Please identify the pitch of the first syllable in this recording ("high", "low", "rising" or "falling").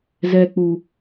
high